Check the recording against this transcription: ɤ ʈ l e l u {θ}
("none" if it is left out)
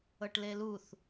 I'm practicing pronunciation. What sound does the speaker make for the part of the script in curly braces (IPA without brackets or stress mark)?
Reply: θ